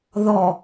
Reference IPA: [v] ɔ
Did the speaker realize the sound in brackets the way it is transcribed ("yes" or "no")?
no